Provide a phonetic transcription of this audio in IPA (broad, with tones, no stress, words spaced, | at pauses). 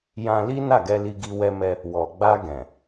jã˧li˦ na˦˨ɡɛ˧ li˧ɡi˧ wɛ˧mɛ˧ | wɔ˨ ɡ͡ba˧ɡɛ̃˨